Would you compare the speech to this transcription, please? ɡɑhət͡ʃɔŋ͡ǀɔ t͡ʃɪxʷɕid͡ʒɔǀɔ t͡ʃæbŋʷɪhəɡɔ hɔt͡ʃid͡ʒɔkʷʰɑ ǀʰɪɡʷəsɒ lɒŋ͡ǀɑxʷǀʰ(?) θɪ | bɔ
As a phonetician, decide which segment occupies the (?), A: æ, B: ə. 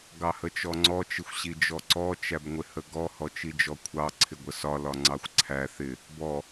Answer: A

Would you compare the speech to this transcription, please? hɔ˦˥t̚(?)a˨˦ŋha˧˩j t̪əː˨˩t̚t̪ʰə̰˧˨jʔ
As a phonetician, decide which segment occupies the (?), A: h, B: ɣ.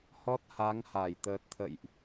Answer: A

